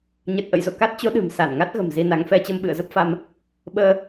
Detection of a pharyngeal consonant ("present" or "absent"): absent